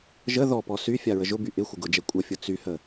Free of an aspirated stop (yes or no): yes